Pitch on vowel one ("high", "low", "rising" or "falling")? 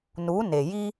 rising